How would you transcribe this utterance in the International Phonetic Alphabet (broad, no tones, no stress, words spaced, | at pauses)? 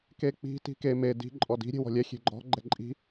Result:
kek͡pi̤ ti̤ke me di̤ ǃʼɔdi̤ ɾʲe̤wɔ̤lʲɛ xʲe̤ɡ͡ǃɔ̤ ɡ͡ǃɛǃʼi̤